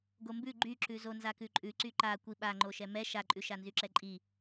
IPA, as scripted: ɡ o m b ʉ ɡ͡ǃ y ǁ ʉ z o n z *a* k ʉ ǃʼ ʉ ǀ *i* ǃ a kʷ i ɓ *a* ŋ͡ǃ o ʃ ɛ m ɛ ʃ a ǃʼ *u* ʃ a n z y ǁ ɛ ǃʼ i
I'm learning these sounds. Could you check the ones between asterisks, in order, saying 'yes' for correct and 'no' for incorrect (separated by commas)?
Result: yes, no, yes, no